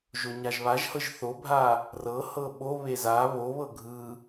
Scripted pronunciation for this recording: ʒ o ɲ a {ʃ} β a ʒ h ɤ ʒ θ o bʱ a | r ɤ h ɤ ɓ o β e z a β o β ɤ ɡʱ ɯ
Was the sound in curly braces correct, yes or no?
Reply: no